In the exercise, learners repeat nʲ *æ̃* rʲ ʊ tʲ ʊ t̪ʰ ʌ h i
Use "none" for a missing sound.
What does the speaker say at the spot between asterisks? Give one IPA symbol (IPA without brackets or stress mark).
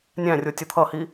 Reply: æ̃